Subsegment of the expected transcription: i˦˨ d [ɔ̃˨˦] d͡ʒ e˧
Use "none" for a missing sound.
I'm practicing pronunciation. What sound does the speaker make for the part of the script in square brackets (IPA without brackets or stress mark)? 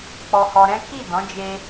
ɔ̃˨˦